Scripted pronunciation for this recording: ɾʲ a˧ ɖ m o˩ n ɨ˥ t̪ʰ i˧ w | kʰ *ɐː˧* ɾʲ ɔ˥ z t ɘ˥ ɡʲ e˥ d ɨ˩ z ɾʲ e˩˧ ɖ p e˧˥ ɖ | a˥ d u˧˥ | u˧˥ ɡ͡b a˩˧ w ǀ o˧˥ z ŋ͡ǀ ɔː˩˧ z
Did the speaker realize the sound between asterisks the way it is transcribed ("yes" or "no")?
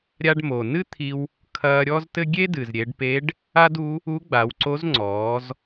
yes